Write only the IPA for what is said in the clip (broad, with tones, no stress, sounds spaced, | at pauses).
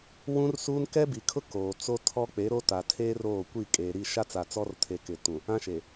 w ũ˦ r s uː˦ n k ɛ˦ b i˨ kʰ ʊ˦ k oː˨ t͡s o˦ tʰ ɔ˦ k͡p e˨˦ ɾ o˦ t a˨ tʰ eː˦ r oː˦˨ kʷ i˦˨ kʼ eː˨ ɾ i˦˨ ʃ a˦ t͡s a˨ t͡s ɔ˦ r tʰ e˨ k ɪ˨ t ũ˨ | ã˦ ʃ e˨